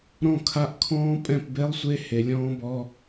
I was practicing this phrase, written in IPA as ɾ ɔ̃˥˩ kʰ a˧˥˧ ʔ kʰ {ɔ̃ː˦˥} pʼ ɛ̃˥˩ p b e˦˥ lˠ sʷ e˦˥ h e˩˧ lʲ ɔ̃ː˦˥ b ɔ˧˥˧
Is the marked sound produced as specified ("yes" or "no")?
yes